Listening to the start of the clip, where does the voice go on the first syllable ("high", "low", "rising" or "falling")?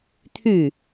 falling